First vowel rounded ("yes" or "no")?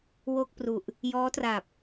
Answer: yes